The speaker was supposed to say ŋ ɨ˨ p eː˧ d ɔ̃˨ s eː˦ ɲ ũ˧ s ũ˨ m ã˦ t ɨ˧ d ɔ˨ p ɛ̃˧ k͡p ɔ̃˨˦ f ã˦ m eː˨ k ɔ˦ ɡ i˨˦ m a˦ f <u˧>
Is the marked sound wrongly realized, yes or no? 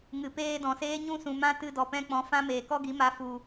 no